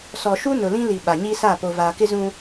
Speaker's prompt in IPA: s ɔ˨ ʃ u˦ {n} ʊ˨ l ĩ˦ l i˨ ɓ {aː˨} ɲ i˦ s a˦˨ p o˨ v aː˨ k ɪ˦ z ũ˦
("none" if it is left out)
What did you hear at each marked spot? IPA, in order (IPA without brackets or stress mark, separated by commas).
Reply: n, a˨